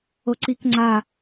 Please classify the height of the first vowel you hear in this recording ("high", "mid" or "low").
mid